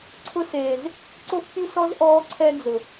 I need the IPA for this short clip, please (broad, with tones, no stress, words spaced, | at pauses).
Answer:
ǀʰʊ˧seː˨z | ǀo˦fpʲu˦sɔ˦z ʔɔː˦ǀʰɛ˦ d͡zʊ˨